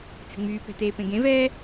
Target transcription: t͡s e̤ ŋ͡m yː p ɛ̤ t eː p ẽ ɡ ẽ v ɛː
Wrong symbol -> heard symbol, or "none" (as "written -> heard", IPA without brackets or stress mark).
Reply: none